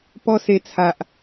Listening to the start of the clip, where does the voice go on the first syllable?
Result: high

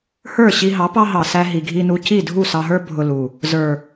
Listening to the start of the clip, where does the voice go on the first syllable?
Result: falling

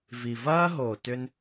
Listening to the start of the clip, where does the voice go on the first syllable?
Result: low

